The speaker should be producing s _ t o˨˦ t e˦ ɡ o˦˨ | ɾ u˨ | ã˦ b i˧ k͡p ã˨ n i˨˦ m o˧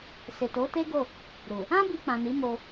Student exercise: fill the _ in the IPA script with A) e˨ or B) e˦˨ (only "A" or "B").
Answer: A